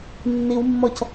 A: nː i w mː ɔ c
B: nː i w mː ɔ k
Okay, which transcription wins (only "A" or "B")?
A